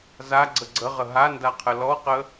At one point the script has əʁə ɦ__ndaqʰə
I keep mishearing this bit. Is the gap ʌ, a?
a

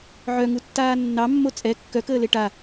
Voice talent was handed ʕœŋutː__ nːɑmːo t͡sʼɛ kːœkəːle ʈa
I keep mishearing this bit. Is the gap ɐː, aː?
aː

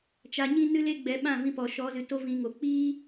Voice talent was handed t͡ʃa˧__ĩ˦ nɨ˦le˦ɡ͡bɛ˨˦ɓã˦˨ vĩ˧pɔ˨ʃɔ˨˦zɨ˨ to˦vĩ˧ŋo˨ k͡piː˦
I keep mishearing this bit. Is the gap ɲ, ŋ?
ɲ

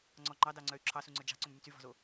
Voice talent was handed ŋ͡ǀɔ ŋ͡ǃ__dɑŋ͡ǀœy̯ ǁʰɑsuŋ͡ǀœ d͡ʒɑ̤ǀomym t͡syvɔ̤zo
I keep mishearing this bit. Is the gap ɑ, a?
ɑ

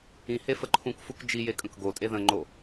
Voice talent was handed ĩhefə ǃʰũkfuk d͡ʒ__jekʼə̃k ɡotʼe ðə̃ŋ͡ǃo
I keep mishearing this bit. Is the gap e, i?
i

